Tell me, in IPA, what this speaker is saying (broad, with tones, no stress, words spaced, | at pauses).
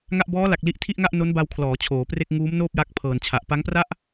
ŋa˥˩ʔ bɔː˦˥la˨˩k̚ li˥˩ʔ tʰi˥˩ʔŋa˥˩ʔ no˦˥nba˧wkʰlɔː˩˦ t͡ɕʰoː˩˦pre˥˩k̚ ŋuː˦˥mnoː˥˩p̚ ja˥˩k̚ pʰɤː˨˩nt͡ɕʰa˨˩ʔ pa˦˥ŋpra˥˩ʔ